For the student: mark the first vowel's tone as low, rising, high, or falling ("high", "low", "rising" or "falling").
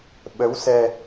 rising